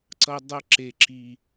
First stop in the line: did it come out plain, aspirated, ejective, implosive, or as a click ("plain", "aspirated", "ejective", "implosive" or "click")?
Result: click